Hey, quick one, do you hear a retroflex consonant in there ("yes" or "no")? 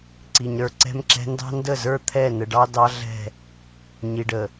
yes